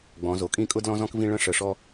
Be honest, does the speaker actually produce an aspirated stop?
no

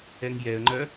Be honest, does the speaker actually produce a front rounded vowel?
yes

